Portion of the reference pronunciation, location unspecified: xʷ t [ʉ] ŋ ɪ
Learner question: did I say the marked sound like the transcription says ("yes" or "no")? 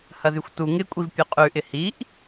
no